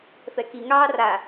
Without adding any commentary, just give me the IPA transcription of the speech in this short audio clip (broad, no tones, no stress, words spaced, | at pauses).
fɛkiŋɑː ra